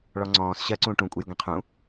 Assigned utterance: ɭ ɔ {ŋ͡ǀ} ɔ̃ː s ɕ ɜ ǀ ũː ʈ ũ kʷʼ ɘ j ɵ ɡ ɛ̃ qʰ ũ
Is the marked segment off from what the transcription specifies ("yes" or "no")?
no